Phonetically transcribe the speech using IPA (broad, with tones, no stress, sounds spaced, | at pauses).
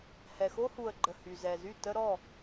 h ɛ˨ x o˦ h u˨ ə̯ ɡ͡ǃ ə˨ h y˨ z ɛ˨ z y˦˨ t ə˦ ɾ ɔ˦˨